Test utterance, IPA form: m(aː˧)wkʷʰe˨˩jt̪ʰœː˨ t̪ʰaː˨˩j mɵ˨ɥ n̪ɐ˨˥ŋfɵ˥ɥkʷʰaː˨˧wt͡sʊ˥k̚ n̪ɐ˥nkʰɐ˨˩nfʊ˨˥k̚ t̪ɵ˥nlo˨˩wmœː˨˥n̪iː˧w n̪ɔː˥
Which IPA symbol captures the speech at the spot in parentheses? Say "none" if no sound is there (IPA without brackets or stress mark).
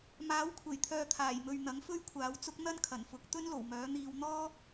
aː˨˥